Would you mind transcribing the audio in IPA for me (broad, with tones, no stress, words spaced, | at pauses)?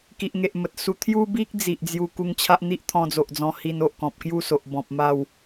ki˨ʔŋe˨ʔmə˨t̚su˧ t̪ʰju˦bi˦k̚ d͡zi˨ʔd͡zju˧ ku˧ŋt͡ɕʰa˦ʔ n̪i˦ʔt̪ʰɔ̃˧d͡zo˨ʔd͡zɔ̃˧ hi˧no˨ʔkɔ̃˨p̚ kju˥˧so˨ʔ bɔ̃˨p̚ma˥˧w